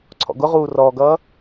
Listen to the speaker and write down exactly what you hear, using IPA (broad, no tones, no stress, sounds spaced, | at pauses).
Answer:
ǀʰ ɔ̰ ɡ ʊ ʁ uː r ɔː ɡ ʌː